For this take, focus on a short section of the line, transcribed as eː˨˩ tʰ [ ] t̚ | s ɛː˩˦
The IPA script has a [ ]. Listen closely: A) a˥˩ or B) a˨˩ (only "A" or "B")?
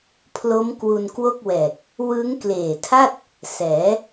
A